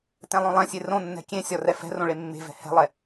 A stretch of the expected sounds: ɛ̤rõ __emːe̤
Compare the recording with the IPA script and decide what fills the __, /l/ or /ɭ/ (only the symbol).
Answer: ɭ